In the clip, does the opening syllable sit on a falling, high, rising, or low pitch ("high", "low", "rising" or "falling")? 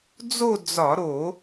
falling